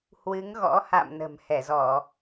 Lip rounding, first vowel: unrounded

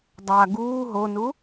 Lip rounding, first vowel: unrounded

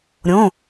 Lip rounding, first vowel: rounded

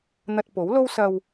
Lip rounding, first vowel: unrounded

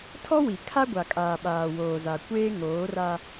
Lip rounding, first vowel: rounded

